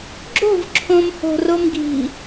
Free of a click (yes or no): no